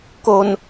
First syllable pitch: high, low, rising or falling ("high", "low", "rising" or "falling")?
low